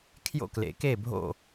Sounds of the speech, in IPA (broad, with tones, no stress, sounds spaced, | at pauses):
kʰ j o̰˥˨ k l ḛ˨˩˦ k e˥˨ bʱ o̰˥˨